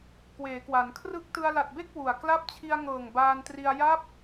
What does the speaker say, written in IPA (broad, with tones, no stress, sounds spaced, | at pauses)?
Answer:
k w eː˩˦ k w a˩˦ n kʰ r ɯ˦˥ k̚ t ɯ˧ a̯ l a˨˩ t̚ b e˥˩ k̚ w u˨˩ a̯ k l a˦˥ p̚ t͡ɕʰ i˧ a̯ ŋ ɤː˨˩ ŋ b aː˧ n t r i˧ a̯ j a˦˥ p̚